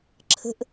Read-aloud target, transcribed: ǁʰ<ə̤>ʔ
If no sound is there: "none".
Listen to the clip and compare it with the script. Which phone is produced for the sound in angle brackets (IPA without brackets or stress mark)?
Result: ə̤